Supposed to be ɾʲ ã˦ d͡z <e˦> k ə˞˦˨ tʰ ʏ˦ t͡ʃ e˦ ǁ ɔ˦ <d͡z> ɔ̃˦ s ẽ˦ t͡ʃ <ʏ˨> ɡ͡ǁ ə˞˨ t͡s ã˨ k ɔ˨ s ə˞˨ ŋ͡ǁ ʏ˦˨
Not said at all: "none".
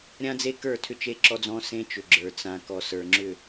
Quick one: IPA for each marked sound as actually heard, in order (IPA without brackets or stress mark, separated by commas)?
e˦, d͡z, ʏ˨